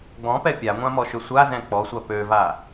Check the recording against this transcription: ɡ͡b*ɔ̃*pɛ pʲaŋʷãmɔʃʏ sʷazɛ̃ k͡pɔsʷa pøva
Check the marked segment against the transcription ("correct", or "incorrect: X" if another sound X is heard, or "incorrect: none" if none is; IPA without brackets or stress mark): correct